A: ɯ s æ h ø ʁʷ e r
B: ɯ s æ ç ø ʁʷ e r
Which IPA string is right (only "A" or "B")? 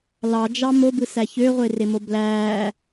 B